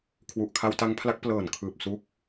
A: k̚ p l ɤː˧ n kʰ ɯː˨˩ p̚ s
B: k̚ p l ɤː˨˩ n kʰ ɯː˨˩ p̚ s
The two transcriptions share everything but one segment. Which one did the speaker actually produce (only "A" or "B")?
B